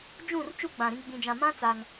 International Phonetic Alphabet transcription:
d͡ʒũ˦˨r t͡ʃu˦ɡ͡bã˨ɾĩ˦ ɡ͡bĩ˨d͡ʒã˨mã˦ t͡sa˦ŋ

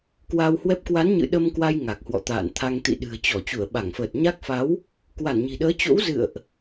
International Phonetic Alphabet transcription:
kwa˧whwɛ˦˥p̚ kwa˨˦nɲɨ̰˧˨ ɗə˧mkwa˧j ŋa˨˩k̚hwɔ̰˧˨t̪a̰ː˧˨nt̪ʰa˧ŋ t̪ḭ˧˨ɗɨ̤˨˩ə̯t͡ɕɔ˧˩ t͡ɕu˧˩ə̯ɓa˧˩ŋfəː˨˩t̚ɲa˦˥k̚ fa˨˦w | kwa˧˩nɲi̤˨˩ɗəː˨˦ t͡ɕo̰˧˥w zɨ̰˧˨ə̯ʔ

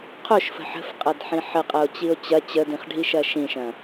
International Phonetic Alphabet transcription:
qʰoʃfə̤ ħə̤fqʼɐdħĩ ħəqʼɐo̯t͡ɕio̯ t͡ɕɐ t͡ɕədĩχɖʱiʃɐ ʃĩʃɐ̃

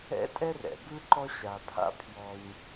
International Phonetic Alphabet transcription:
ɛ̰˥tʼɛ˥rɛ̰˩ bɯ˥ǃɔ˦ɕa˩pʰa̰˦ pʰjɔ˨ɲ

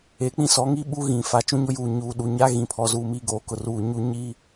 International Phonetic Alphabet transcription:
e˨˦k͡pĩ˦ sɔ˨˦ŋi˦ ɓu˦ ɣĩ˨fa˨ t͡ʃũ˦ɲʊ˦juː˨ ɲuː˨ ɗu˨ɲa˦ ɣĩ˨pʰɔ˨ zuː˨mi˨ ɡoː˨kʊ˨ruː˨ ɲu˨ ɲi˦

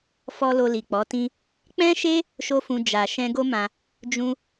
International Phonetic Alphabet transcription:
fɔ˧ lo˧li˨k͡pɔ˨˦tĩ˦ | k͡pɛ̃˦ʃe˦ | ʃo˦fũ˧ d͡ʒa˨ ʃɛ̃˧ɡo˦mã˧ | d͡ʒũ˧

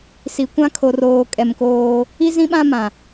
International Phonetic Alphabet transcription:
si˨kʷã˦ kʰo˨r oː˨kʼɛ˨m koː˦ | i˦zĩ˦ɓã˦ mã˨

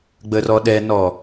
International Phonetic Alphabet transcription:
ɡ͡bərɔɗɛnɔ

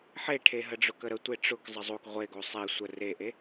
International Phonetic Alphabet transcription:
ħeʈʰe ɦəɖ͡ʐʊkəɾə tʷeʈ͡ʂʊk zˤəzˤok ʁʷeɡo sˤe sʷə reʔe

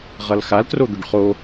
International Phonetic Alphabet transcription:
ʁʌlxaltro d̪ʏɖχo

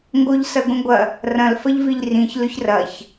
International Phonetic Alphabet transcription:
ŋɡoʎsɐɡʷĩɡʷɐ | rɐ̃l fɐʎviʎrĩç lɵçrɐç

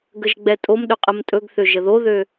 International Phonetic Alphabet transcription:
ɡəʒɡ͡bɛtʼomɗɵ qʼəmtʼɵɡθø ʒəðoðø

